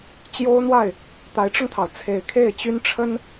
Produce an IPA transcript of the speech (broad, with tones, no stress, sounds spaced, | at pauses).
t͡ɕ j o˥ ʊ̯ n̪ w a˥˩ ɪ̯ | t̪ a˧˥ ɪ̯ ʈ͡ʂ ʊ˧ ŋ t̪ʰ ɑ˩ ʊ̯ t͡sʰ e˨˩ ɪ̯ kʰ e˥˩ ɪ̯ t͡ɕ y˥ n ʈ͡ʂʰ ə˥ n